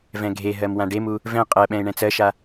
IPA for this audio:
v ɛ̃ ɡʱ e ɦ ɜ m w ã ɖ e m u | v ɛ̃ qʼ ɜ ɓ ɛ̃ ɪ̯ ɳ ɛ̃ t͡s ɜ ʃ a

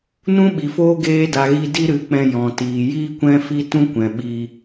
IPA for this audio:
n ũ˦ ɓ i˨ f oː˦ ɡ eː˧ d a˨ ɣ i˧ d i˦ ɾ ɨ˨˦ k͡p ɛ̃˧ j ɔ̃˨ t iː˨ j iː˦ kʷ ɛ̃˦ f i˦ t ũ˦ kʷ ɛ̃˨ ɓ i˧

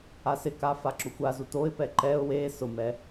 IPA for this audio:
a s ɪ k a f a ǁ ʊ xʷ a z u t o ɪ̯ p ɛ ǃ ɛ ʊ̯ w e s ʊ m ɛ

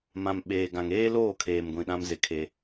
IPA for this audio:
m ã˨ m ɓ eː˨ ɡ ã˨ ŋ eː˦ l oː˦˨ kʰ eː˨ m ɡʷ ĩ˨ ɗ ã˦ m z ɪ˦ kʰ e˦

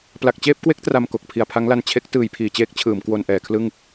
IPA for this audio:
p l a˨˩ k̚ t͡ɕ eː˥˩ p̚ k w e˦˥ k̚ t r a˧ m k o˨˩ k̚ pʰ i˨˩ a̯ pʰ a˦˥ ŋ l a˧ n t͡ɕʰ e˦˥ k̚ t ɯː˩˦ j pʰ iː˩˦ t͡ɕ eː˦˥ k̚ t͡ɕʰ ɯː˩˦ m k w o˧ n ʔ ɛː˩˦ kʰ l ɯ˥˩ ŋ

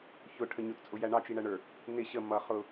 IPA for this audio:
ç ʊ ʈʰ ə ɲ ʊ t t͡sʼ ʊ j æ ɳ ɑ t͡ʃ i ɳ æ ɳ ə˞ | n ɪ ɕ ə m ʌ χ ʊ

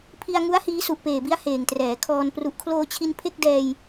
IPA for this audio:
pʰ i˧ a̯ ŋ u˦˥ a̯ h iː˦˥ s u˨˩ ʔ p eː˨˩ b i˦˥ a̯ h eː˨˩ ŋ t r ɛː˩˦ kʰ ɔː˧ n p r u˨˩ ʔ kʰ l oː˧ t͡ɕʰ i˧ n pʰ e˥˩ k̚ d ɛː˧ j

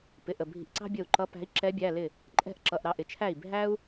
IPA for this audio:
p ɪ˩˧˩ ʔ ə˧˩ bʱ i̤˧˩ ʔ ǀ ɑ̤˥ bʲ ə˧˩ u̯ ǃ ʌ˧˥ p æ̤˧˥ i̯ ǁ ɛ˧˥ bʲ æ˩˧˩ l ɪ˥˩ | ǃʼ ɛ̤˥˩ ʔ ǁ ʌ˩˧˩ ʔ ɾ ɑ˩˧˩ ʔ ɪ˥ t͡ʃʰ æ˥˩ i̯ bʱ æ˥ u̯

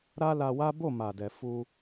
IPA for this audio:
ɾ a˦ l a˧ w a˦ b o˦˨ m a˨ d ɛ˨ f u˧

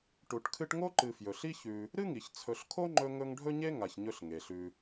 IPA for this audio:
ʈ u˩ ʈ kʰ ɨ˦ ʈ ŋ o˥ ǃ ɨ˨ f j ɵ˩ ɬ i˥ ç ʉ˨ | ɾ ɨ˥ ŋ i˩ ç t͡sʰ ɵ˨ ɬ kʰ o˥ ŋ͡ǃ ɵ˦ ŋ ɵ˦ ŋ ɖʱ ɵ˥ ɲ e˥ ŋ a˨ ç ɲ ɵ˦ ɬ ŋ e˩ ɬ ʉ˨

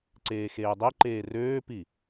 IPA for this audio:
ǀ eː x eː dˤ e ǃ eː r øː p i

